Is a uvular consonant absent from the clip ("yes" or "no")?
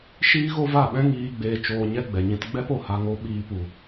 yes